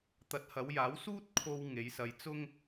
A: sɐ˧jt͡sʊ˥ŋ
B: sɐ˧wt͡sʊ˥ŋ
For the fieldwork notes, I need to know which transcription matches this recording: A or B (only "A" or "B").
A